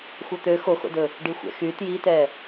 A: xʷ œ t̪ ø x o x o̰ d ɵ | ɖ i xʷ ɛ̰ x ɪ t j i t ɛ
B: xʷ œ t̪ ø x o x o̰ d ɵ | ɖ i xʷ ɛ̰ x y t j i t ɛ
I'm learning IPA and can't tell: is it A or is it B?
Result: B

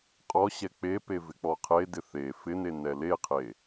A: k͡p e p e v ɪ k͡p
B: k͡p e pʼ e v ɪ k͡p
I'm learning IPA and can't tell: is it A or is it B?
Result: A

